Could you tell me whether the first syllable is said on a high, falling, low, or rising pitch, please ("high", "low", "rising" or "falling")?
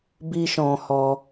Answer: high